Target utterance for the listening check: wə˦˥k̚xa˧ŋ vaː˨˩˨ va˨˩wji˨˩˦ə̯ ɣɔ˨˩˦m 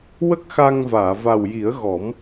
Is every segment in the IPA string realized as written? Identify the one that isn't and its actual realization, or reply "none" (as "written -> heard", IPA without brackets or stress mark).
none